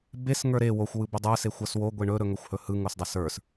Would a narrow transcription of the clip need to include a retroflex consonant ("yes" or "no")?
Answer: yes